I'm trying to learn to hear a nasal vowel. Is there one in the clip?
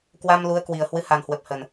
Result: no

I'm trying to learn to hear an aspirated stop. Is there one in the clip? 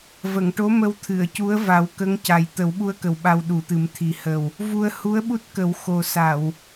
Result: yes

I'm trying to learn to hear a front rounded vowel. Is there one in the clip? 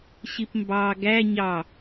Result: no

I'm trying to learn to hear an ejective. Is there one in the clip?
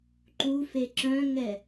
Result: no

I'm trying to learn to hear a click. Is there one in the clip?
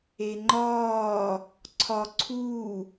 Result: yes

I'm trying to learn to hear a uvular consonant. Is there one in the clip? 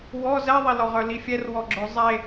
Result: yes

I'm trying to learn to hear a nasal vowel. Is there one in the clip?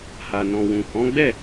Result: yes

